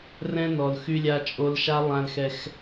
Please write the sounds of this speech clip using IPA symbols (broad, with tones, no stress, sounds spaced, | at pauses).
r ɛ̃˦ n ɔ˨ l x y˦ lʲ a˦ t͡ʃʼ o˦ l ʃ a˦ lˠ ã˦ l x ɛ˦ x